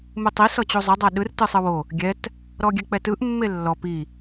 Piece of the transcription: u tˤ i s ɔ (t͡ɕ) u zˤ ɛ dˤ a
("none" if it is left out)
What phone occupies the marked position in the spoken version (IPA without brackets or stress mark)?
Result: t͡ɕ